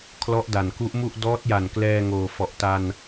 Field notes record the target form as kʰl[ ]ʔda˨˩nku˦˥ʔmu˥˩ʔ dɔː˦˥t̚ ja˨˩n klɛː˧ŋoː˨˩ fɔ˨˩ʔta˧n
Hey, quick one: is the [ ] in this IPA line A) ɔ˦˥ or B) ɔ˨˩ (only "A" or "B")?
A